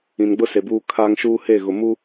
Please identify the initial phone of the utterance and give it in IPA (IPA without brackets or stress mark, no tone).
ĩ